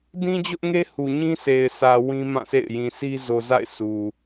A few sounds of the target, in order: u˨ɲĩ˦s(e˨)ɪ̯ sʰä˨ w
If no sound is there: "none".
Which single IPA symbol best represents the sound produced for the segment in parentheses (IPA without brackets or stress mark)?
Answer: e˨